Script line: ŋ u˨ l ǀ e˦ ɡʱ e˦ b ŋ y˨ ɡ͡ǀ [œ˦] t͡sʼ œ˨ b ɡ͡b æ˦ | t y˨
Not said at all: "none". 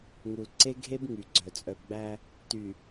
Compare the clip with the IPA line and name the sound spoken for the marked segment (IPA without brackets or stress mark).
œ˨